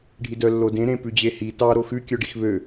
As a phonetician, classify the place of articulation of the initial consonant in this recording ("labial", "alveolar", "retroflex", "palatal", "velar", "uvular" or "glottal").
retroflex